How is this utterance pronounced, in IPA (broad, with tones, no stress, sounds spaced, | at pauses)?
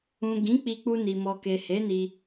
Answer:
ũ˨ ɡ ĩ˨˦ k͡p i˧ k͡p u˧ n i˨ m ɔ˨ k e˨ h e˨˦ n i˧